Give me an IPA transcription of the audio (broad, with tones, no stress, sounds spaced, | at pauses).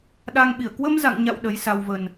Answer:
ɗ a˧ ŋ ɓ i˧˩ ə̯ k w ə˧ m z a̰˧˨ ŋ ɲ a̰˧˨ w ɗ ə˨˦ j s a˧ w v ə˨˩ n